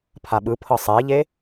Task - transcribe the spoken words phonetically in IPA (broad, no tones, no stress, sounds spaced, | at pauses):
pʰ a ɓ ɯ pʰ ɤ sˤ ɛ e̯ ʎ e